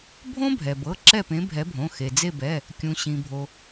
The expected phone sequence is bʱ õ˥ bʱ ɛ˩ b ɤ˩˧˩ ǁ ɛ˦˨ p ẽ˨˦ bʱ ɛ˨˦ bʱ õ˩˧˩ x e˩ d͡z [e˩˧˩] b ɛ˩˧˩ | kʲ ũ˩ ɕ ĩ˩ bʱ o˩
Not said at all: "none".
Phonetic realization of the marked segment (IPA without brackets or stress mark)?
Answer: e˦˨